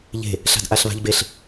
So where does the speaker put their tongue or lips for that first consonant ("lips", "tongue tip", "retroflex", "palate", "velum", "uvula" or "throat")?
palate